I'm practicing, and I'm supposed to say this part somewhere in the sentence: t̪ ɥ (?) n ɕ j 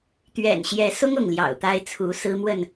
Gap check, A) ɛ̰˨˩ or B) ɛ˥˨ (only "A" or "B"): A